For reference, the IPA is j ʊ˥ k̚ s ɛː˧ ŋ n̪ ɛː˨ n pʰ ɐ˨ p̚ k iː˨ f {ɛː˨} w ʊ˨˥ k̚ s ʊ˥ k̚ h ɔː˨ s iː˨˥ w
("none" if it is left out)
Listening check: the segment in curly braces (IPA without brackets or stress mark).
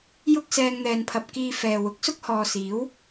ɛː˨